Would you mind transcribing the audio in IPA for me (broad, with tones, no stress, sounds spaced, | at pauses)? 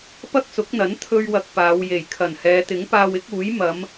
p ɐ˥ k̚ s ʊ˨˥ k̚ n̪ ɐ˨˥ n t̪ʰ ɵ˥ ɥ w ɐ˧ k̚ p aː˨˧ w j e˨˩ j kʰ ɐ˨˩ n h ɛː˨˧ t̪ ɪ˨˥ ŋ p aː˧ w ɪ˨˥ k̚ uː˨˥ j m ɐ˨˧ m